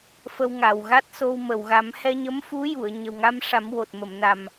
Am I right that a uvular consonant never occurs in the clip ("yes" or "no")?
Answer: yes